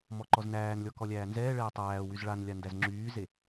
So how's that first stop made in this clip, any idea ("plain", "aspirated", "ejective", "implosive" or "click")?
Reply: click